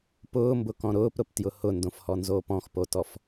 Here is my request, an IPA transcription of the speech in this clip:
p ʊː m b ʊ k ɔ̃ ɾ ʊː p ɾ ʊ p t j ʊ h ʊ n d õ f h ɔ n z oː p ɔ̃ x p o t ɔ f

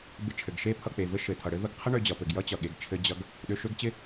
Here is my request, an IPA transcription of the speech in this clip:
b ɪ˧ t͡ʃʰ ɘ˩ ɡ ʃ e˥ pʰ ʌ˧ k͡p e˩ v ɘ˥ ʃ ɘ˩ tʰ ʌ˩ ɽ ɘ˥ v ə˧ ɡ qʰ ə˥ ɳ ø˧ d͡ʑ ʌ˩ p ɘ˩ ɡ j ʌ˥ t͡ɕ ʌ˩ ɠ e˩ ɡ t͡ʃʰ ɘ˧ d͡ʑ ʌ˧ ɡ | ɗ ø˧ ʃ ø˥ ɡ t͡ɕ ɪ˥

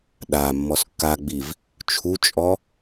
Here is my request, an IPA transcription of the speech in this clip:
ɗ a mː ɔ s kː a ɡ͡b i v | t͡ʃʰ u t͡ʃʼ ɔ

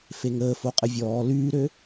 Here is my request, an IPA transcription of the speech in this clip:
f e ŋ əː f o qʼ ə vʲ ɔː l yː ɾ ø

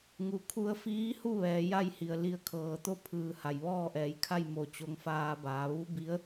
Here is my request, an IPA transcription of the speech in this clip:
ŋ u˩ kʰ u˧ ə̯ f iː˧˥ h u˥˨ ʋ ɛː˩˧ j a˥˨ j h i˩ ə̯ l i˩˧ ə̯ kʰ ɤː˩ t̪ o˥˨ pʰ ɯː˩ h a˩ j ʋ ɔː˥˨ ʔ ɛː˩˧ j kʰ a˥˨ j m o˧˩ t͡ɕ o˧ ŋ f aː˧ b aː˩˧ ʋ u˧˥ b i˧˥ ə̯

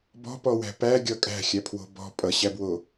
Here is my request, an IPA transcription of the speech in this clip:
b ɔ̤ p ɔ w æ̤ p æ ɡʲ ʌ kʼ æ̤ xʲ æ pʰ w o̤ b ɔ̤ pʼ ʌ ɕ æ b w o

